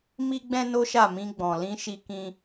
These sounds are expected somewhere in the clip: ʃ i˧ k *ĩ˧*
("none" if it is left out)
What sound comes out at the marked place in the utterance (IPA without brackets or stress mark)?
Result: ĩ˧